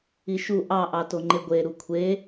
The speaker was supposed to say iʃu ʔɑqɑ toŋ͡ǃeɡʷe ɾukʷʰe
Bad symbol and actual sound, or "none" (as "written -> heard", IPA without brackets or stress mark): q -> ʔ